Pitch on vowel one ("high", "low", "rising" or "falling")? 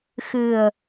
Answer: low